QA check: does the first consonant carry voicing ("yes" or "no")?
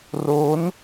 yes